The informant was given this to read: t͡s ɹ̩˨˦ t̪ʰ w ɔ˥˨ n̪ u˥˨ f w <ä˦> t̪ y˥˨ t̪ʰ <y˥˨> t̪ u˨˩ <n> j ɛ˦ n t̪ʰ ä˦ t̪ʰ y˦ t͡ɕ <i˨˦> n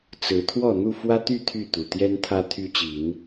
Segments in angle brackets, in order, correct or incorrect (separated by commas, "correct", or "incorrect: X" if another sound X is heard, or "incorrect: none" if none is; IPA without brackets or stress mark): correct, correct, incorrect: t̪, correct